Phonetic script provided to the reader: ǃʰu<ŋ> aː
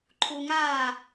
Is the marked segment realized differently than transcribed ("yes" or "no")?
no